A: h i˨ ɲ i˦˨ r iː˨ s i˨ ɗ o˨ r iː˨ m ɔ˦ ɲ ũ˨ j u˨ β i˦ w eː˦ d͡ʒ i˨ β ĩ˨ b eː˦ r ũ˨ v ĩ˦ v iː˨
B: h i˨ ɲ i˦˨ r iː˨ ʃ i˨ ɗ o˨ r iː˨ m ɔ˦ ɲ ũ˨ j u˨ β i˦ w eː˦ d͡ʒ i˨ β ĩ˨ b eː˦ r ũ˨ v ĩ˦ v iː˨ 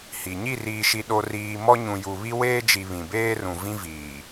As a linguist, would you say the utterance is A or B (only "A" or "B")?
B